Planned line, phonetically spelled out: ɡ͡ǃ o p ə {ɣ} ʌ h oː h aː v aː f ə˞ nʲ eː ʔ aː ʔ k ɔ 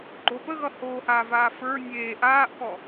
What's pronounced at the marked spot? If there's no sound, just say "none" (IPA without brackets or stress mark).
ɣ